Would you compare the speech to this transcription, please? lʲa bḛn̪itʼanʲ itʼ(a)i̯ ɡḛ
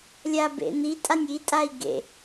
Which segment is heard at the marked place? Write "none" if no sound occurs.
a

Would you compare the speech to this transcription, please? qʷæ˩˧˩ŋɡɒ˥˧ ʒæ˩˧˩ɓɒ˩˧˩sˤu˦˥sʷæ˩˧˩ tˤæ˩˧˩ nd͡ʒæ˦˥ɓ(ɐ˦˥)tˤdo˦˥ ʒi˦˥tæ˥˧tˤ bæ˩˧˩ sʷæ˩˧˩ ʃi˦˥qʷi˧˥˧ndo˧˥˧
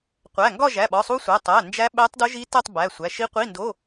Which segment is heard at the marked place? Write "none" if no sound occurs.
æ˦˥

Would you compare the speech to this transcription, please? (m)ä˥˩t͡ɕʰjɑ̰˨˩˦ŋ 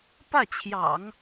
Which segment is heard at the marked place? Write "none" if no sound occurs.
p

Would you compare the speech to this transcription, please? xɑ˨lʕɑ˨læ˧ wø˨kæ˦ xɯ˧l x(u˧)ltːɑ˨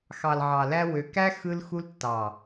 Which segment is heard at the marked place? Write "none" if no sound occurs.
u˧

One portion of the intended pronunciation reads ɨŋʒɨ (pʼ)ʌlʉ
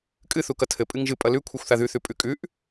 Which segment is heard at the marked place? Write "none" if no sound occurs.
pʼ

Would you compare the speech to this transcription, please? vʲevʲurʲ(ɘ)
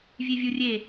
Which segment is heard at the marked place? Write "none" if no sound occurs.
e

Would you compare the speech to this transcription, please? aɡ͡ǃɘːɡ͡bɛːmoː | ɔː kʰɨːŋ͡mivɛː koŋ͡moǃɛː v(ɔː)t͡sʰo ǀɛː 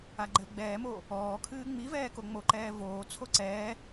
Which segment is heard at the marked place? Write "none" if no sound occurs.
oː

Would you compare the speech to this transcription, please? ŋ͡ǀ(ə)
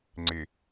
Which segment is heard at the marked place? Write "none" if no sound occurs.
ɪ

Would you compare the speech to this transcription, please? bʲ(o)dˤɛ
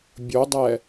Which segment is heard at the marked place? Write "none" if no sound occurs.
o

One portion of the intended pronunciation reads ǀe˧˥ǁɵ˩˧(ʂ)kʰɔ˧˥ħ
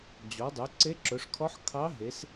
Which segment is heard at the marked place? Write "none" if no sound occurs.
ʂ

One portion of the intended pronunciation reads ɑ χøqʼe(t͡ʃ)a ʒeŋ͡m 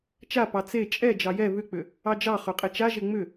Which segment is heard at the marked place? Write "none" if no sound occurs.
t͡ʃ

